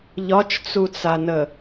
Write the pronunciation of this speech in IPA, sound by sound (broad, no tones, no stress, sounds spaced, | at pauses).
ʎ ɒ t͡ʃ t͡s u t͡s a n ə